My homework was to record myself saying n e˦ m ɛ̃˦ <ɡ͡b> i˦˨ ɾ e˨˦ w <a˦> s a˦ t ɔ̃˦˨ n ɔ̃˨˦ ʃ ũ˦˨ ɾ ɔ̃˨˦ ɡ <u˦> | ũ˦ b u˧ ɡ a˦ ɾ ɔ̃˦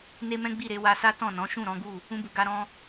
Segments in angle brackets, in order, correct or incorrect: correct, incorrect: a˧, incorrect: u˦˨

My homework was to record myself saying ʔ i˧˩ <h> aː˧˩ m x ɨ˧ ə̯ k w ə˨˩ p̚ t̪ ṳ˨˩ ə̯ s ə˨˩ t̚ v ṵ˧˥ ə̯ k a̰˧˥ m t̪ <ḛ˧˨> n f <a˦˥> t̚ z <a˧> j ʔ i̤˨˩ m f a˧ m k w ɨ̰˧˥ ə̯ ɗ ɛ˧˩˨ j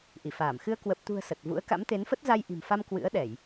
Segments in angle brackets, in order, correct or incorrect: incorrect: f, incorrect: e˨˦, incorrect: ə˦˥, correct

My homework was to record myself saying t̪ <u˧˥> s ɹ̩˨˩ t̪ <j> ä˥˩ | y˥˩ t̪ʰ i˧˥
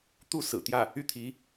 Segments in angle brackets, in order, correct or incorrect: incorrect: u˥˩, correct

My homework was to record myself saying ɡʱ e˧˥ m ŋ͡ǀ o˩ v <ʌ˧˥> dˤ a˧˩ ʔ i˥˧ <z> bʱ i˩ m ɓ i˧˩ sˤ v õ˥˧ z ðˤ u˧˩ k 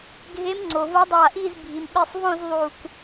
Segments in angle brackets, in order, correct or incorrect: correct, correct

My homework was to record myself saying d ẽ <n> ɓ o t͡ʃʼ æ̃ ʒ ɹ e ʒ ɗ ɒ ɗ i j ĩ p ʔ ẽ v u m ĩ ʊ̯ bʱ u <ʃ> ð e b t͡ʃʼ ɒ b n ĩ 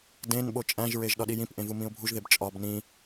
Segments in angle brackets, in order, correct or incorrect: correct, incorrect: ʒ

